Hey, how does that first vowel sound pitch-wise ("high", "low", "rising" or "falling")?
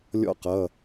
falling